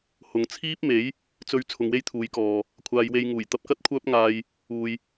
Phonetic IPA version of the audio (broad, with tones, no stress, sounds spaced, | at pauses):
h ʊ˨ ŋ t͡sʰ iː˥ p̚ m e˨˥ j | t͡s ɵ˧ ɥ t͡sʰ ʊ˨˧ ŋ w e˥ j t̪ʰ uː˨˥ j k ɔː˨ | kʷʰ aː˧ j w e˧ j ŋ uː˨˩ j t̪ ɐ˧ p̚ k ɐ˥ t̚ kʷʰ œː˥ p̚ ŋ aː˧ j | uː˨ j